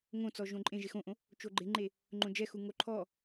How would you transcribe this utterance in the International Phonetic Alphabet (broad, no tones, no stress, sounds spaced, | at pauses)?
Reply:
ŋ õ t͡s ɔ ʒ õ ǃʼ ẽ ʒ e x õ ʔ õ | t͡ʃ o ɡ͡ǃ ɪ ŋ͡ǃ e | ŋ͡ǃ õ d͡ʒ ɛ x u ŋ o ǃʰ ɔ